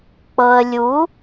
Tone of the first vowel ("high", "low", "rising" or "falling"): low